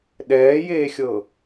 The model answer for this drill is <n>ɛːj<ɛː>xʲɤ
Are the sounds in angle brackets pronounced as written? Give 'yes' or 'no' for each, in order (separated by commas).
no, no